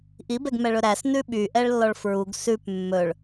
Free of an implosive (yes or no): no